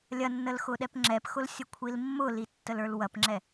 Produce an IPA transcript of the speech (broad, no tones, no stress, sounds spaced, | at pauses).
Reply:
lʲ ɐ nː ə l x ʊ ɗ ɛ p ŋ͡ǁ ɛ p x ʊ l sʲ ə kʷʰ i l mː ʊ l i tː ə l ə˞ l w ɐ p ŋ͡ǁ ɛ